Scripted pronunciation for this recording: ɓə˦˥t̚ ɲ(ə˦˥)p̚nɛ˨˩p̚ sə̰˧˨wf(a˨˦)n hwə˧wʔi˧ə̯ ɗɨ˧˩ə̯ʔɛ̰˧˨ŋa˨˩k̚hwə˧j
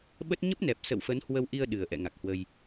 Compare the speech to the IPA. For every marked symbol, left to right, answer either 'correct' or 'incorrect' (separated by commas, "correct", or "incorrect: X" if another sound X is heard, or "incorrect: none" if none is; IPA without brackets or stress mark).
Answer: correct, incorrect: ə˨˦